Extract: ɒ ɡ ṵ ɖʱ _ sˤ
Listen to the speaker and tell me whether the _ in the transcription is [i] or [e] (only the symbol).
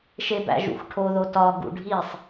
i